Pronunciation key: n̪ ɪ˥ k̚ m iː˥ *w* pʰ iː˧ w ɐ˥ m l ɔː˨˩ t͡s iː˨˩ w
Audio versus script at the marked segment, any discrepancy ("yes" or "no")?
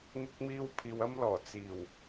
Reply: no